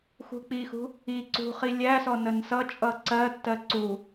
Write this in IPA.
x ṳ k͡p i x ṳ | i ǀ ṳ χ i lʲ æ s ɔ n ə n s ʌ t͡ʃʼ ʌ ǀ ɜ tː ɜ ǀ u

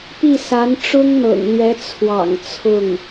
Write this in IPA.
p i˥˩ s a˧˥ n ʈ͡ʂ ʊ˥ ŋ n̪ ɤ̰˨˩ ŋ l ɥ ɛ˧˥ t͡sʰ w ɑ̰˨˩ ŋ t͡sʰ ʊ˥˩ ŋ

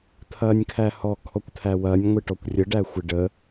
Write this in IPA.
t̪ʰ ɐː nʲ kʰ æ h ɔ kʰ ɔ kʷ t̪ʰ æ w ɐː nʲ ŋʷ ɪ ʈ ɔ kʷ rʲ ə ɖ æ xʷ ɪ ɖ ə

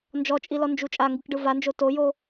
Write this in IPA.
n d͡ʒ ɔ t͡ʃʼ i l ɔ n d͡ʒ u t͡ʃʼ a ŋ ɡ ɯ k ɖ ɯ v a n d͡ʒ o t o j o

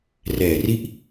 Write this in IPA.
r ɛː˨˩ r i˥˩ ʔ

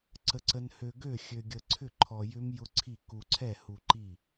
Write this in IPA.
ǀ ə˧ ǀ ə˧ n h ø˧ ɡ ø˥˨ xʲ ø˧ ɡʲ ə˧ ǀʰ ʏ˥˨ ǃʰ ɔ˧ j ʏ˦˥ m j ʊ˦˥ ǀʰ i˥˨ k u˧ ǀʰ ɛ˥˨ h u˧ ǃ i˥˨

